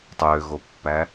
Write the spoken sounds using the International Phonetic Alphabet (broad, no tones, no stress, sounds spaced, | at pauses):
tˤ ø ɣ o pː æ